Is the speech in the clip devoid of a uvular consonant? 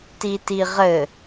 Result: no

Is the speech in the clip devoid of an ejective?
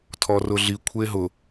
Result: yes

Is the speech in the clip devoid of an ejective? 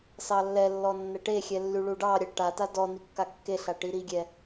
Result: yes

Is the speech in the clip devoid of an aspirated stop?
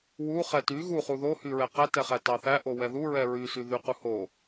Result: yes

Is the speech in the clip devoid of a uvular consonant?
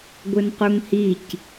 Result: no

